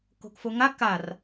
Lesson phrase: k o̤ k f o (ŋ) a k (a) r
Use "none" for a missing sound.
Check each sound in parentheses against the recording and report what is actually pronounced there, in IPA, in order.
ŋ, a

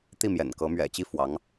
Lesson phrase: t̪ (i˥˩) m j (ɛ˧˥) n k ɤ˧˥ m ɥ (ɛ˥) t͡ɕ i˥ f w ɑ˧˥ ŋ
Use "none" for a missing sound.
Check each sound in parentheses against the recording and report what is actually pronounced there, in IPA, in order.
i˥˩, ɛ̰˨˩, ɛ̰˨˩

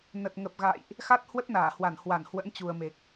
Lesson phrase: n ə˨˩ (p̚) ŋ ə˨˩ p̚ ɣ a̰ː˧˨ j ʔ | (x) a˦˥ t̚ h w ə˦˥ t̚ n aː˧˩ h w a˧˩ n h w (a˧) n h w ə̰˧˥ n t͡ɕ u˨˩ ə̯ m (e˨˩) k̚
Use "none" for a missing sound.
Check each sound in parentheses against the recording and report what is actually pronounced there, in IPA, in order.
t̚, x, a˧˩, e˨˩

